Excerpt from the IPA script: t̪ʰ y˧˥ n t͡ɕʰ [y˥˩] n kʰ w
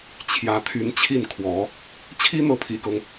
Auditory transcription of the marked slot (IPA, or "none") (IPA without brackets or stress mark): i˥˩